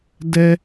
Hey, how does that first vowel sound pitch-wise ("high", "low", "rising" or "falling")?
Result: high